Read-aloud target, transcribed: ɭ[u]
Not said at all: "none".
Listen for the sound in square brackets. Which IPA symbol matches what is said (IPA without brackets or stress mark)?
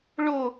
o